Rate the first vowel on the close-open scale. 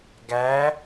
open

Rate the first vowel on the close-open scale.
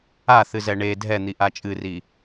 open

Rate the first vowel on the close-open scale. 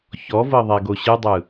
mid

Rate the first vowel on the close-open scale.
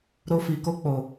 mid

